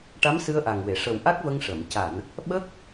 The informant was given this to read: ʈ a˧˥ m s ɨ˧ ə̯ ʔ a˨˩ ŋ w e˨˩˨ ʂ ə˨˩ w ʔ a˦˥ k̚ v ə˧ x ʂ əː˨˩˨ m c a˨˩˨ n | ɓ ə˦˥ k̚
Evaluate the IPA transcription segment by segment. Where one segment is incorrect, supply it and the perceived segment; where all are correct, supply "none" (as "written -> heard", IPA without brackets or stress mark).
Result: x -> ŋ